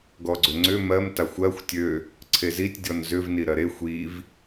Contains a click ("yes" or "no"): yes